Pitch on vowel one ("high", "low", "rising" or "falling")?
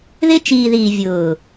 high